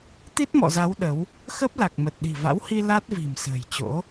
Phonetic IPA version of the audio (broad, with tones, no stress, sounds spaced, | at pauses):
t̪ i˦˥ t̚ m ɔ̰˧˨ z a˨˦ w ɗ ə˨˦ w | x ə˦˥ p̚ l a˨˩ k̚ m ə˨˩ t̚ ɗ i̤˨˩ v a̰˧˥ w h i˧ l a˦˥ t̚ v i̤˨˩ m s ə̤ː˨˩ j t͡ɕ o̰˧˥